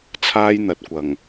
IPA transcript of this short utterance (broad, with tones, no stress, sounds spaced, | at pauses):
t͡sʰ aː˥ j n̪ ɐ˨˥ t̚ kʷ ɐ˨˩ ŋ